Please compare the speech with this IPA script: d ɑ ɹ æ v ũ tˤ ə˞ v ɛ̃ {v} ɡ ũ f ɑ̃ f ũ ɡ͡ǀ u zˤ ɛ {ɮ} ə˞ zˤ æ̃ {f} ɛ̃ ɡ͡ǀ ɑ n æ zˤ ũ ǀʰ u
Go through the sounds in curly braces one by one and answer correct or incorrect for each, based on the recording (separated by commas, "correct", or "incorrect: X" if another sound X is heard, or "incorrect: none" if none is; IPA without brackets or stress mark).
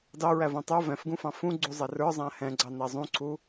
incorrect: f, incorrect: r, incorrect: h